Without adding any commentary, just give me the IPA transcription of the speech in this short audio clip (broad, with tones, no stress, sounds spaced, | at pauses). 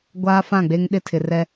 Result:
ɡʷ aː˦ f ã˦˨ ɡ͡b e˦ ŋ ɗ ɪ˦ tʰ ɪ˨ r ɛ˦